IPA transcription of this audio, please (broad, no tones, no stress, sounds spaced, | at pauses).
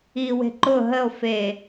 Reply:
i w e̤ ǃ ʊ ɦ ə o̯ f e